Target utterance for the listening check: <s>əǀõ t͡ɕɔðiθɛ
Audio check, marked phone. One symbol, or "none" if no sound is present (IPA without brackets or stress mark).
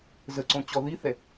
z